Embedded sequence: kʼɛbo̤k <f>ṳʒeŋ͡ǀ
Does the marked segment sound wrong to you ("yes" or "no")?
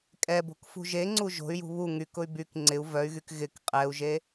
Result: no